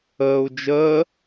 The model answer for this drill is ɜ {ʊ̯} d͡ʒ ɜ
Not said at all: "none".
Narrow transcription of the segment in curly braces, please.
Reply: ʊ̯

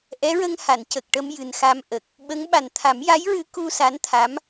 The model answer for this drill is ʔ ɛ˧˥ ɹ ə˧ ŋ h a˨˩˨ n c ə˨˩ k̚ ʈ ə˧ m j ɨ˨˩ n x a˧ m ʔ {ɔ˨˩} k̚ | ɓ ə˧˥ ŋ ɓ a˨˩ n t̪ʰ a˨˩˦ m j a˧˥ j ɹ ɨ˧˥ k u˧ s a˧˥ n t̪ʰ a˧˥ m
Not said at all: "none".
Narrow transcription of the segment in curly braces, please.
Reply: ə˨˩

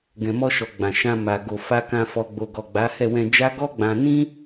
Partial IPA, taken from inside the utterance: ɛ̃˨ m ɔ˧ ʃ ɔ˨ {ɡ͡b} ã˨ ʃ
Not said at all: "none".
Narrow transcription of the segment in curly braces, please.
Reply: ɡ͡b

